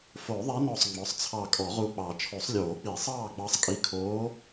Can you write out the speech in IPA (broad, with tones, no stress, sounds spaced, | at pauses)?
f o˨˩˦ ðˤ ɛ˧˥ n ɔ˧˩ sˤ ŋ͡m ɔ˩˥ sˤ t͡sʰ ɑ˧˩ kʼ ɔ˨˩˦ ʁ u˧˩ k͡p ɑ˨˩˦ t͡ʃʰ o˨˩˦ sˤ lʲ oː˨˩˦ k͡p i˨˩˦ sˤ ɑː˥˨ ɡ͡b ɑ˧˥ sˤ kʼ i˧˥ kʰ oː˧˥